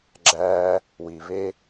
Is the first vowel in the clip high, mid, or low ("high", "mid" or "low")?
low